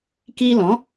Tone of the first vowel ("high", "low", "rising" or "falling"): high